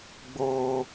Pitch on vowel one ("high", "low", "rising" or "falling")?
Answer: high